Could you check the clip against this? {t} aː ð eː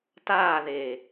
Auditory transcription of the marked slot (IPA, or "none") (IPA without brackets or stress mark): t